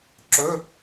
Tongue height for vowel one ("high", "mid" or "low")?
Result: mid